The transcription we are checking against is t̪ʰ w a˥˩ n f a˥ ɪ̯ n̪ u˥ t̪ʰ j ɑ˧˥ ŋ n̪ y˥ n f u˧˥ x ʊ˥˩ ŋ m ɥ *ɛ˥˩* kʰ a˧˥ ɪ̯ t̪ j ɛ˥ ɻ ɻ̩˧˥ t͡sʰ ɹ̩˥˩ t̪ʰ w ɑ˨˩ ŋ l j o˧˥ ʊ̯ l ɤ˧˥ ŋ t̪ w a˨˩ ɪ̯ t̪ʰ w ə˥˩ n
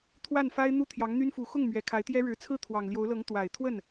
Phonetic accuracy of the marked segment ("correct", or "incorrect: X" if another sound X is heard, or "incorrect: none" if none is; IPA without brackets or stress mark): incorrect: ɛ˨˩